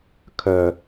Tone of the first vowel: low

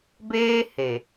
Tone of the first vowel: high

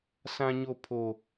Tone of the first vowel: high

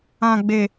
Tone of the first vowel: low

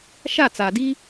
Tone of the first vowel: falling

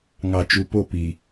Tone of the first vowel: low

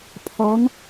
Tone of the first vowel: rising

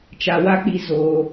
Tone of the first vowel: low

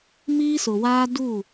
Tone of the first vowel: high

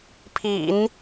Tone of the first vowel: low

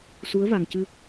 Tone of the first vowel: rising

